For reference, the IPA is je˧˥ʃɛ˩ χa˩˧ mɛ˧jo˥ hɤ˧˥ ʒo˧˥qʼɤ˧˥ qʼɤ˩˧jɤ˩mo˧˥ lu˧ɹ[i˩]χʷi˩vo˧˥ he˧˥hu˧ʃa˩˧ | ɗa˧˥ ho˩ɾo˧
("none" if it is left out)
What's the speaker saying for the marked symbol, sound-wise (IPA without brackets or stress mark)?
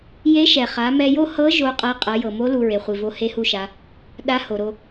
e˩